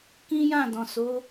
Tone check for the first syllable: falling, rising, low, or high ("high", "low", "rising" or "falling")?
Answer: high